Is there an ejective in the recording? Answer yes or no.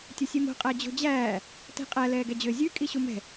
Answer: yes